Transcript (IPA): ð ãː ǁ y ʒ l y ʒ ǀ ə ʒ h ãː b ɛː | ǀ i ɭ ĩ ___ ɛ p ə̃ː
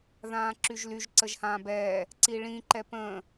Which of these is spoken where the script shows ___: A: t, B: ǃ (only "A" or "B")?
B